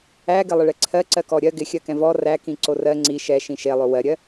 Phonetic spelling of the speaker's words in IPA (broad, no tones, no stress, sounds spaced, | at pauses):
æ ɡ ɪ lˠ ɪ ɭ ɛ ǀʰ ɜ ǀ ɜ k ɔ ɾʲ ɜ ɡ ɪ xʲ ɜ k ɛ̃ v ɔ r æ k ĩ ǀ o r ɜ ŋ͡ǀ i ʃ ɛ ʃ ĩ ʃ e lˠ o w ɜ ɾʲ ɜ